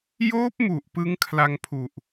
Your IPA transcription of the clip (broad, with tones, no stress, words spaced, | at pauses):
joː˦˥p̚mu˨˩ʔ pɯ˦˥ŋkʰla˧ŋpʰu˨˩ʔ